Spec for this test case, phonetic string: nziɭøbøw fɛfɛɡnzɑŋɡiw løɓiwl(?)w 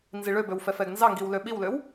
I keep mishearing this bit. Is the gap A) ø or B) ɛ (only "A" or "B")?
A